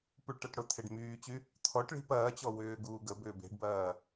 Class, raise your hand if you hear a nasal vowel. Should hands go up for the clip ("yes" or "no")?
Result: no